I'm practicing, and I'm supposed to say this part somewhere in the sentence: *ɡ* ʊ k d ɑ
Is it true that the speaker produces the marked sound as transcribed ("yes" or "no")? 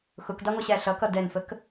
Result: no